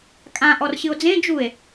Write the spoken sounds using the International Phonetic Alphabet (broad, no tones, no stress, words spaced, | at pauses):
kʼã ʔɔrɕɨo̯d͡zẽ d͡ʒue̯